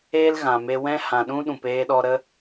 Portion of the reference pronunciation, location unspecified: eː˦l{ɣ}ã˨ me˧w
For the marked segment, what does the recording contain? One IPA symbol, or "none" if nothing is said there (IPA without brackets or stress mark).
ɣ